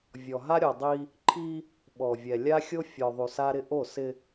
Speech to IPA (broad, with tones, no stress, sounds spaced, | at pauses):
vʲ ɔ˨ ɦ a˦ ɾʲ ɔ˨ dˤ i˦ | ǃʰ i˦ | ɓ ɔ˨ vʲ ɛ˨ lʲ a˦ xʲ o˦ fʲ ɔ˨ ðˤ u˨ s a˦ ɾ ɪ˦ ʔ o˦˨ s ɪ˦